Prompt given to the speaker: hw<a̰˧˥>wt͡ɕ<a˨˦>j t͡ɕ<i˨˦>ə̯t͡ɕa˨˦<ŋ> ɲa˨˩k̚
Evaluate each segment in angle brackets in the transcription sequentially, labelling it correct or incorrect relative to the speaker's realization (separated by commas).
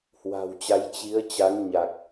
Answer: incorrect, correct, correct, correct